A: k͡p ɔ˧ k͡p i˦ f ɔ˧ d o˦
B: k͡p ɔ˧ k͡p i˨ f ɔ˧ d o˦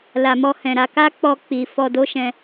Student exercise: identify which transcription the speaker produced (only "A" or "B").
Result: B